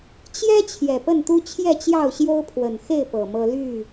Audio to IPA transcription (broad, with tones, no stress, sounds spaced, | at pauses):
t͡ɕ j ɛ˦ t͡ɕʰ j ɛ˨˩ p ə˥˨ n t̪ u˦ t͡ɕʰ j ɛ˥˨ t͡ɕ j ɑ˥˨ ʊ̯ ɕ j o˦ ʊ̯ pʰ w ə˨˩ n x e˥˨ ɪ̯ p ɤ˨˩ m ɤ˦ l y˥˨